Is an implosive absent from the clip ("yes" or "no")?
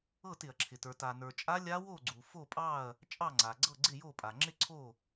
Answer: yes